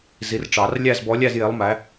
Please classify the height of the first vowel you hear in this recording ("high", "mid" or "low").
high